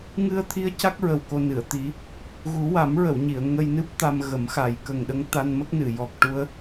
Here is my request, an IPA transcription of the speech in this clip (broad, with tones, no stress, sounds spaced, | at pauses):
ŋ ɨ˧ ə̯ t̪ʰ i˧˥ ə̯ c a˦˥ k̚ ɹ ə˨˩ w k o˧ n ɨ˨˩˨ ə̯ t̪ i˧˥ | ɣ u˨˩˦ w a˨˩˦ m ɹ ə˨˩˨ w ɲ i˨˩˨ ə̯ ŋ ə˧ j n ɨ˦˥ p̚ t̪ a˧ m ɣ ə˨˩˦ m x a˨˩ j k ə˨˩ ŋ ɗ ə˧˥ ŋ t̪ a˧ n m ə˦˥ k̚ n ɨ˨˩˨ j ɔ˨˩ k̚ ʈ u˧ ə̯